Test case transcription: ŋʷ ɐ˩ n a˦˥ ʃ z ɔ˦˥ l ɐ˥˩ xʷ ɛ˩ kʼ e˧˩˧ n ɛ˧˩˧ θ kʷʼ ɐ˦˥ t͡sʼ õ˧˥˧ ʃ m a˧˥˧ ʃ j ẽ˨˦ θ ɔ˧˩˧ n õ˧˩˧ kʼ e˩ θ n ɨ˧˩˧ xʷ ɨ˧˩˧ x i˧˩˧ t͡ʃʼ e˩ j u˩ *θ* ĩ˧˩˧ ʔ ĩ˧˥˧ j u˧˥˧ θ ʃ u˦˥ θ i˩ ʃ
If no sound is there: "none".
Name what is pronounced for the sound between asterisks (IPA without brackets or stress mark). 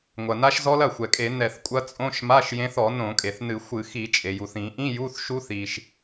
θ